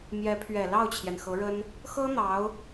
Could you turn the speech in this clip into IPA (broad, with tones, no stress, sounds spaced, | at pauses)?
m j ɛ˧˥ pʰ ɥ ɛ˨˩ l ɑ˥˩ ʊ̯ t͡ɕʰ j ɛ˩ n x ɤ˧˥ ɻ ə˥ n | x ɤ˥ n̪ ɑ˧˥ ʊ̯